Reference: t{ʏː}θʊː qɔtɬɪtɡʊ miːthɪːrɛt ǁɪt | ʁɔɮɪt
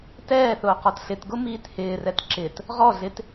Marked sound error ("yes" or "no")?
yes